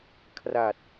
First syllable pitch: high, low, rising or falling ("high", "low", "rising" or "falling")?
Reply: low